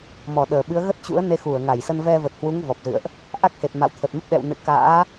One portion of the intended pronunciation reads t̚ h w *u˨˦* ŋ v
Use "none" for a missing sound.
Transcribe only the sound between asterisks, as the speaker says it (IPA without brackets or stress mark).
u˨˦